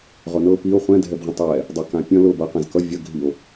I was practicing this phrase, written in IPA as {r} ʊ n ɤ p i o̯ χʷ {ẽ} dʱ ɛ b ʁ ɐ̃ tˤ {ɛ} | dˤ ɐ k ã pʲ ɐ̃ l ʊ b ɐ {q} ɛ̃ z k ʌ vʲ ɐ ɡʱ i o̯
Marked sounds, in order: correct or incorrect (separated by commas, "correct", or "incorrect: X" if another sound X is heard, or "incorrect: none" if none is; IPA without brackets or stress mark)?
incorrect: ʁ, incorrect: ɛ̃, correct, correct